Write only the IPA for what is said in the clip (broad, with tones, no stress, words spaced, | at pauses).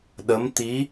ɗə˧˥mt̪i˧˥